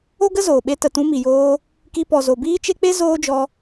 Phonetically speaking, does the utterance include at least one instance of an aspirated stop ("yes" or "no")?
no